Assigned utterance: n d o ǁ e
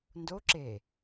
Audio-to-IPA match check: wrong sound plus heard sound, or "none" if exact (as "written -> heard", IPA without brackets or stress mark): none